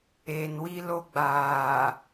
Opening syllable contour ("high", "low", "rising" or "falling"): low